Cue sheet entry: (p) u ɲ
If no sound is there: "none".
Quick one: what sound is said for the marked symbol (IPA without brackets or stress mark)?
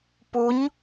p